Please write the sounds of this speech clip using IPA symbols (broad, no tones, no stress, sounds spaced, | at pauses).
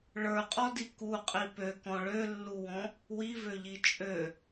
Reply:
ɭ ə˞ qʼ ɔ d i k u qʼ i p ø k ɔ̃ ɭ ø lː u w ɔ̃ | w i v ø ʎ i t͡ʃʼ ø